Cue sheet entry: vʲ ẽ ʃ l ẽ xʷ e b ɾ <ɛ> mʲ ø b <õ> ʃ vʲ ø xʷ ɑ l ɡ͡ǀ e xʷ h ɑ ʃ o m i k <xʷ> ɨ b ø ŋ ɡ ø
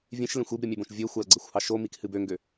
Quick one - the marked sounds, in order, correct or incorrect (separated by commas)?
incorrect, correct, incorrect